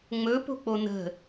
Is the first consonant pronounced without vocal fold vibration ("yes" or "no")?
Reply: no